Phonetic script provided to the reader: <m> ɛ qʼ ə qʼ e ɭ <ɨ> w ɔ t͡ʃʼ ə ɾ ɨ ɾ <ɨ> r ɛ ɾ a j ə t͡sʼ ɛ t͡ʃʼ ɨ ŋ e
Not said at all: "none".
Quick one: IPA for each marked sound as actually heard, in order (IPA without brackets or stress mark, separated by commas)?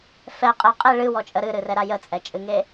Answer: f, ɨ, ɨ